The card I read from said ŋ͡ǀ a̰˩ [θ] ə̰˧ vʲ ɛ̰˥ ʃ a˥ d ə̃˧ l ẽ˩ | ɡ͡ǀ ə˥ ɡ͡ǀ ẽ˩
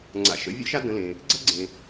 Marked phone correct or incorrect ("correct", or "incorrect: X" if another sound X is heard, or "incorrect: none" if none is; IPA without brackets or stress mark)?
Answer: incorrect: ʃ